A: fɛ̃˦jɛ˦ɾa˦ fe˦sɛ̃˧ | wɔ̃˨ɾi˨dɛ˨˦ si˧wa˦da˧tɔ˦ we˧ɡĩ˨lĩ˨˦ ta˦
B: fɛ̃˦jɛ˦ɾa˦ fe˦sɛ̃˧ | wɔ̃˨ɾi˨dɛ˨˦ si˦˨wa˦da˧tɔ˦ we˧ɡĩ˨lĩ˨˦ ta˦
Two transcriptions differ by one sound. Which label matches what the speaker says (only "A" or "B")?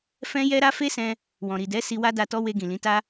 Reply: A